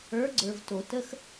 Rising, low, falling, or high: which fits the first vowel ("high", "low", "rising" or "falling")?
rising